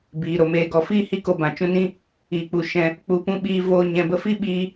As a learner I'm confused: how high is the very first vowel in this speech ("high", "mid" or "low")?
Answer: high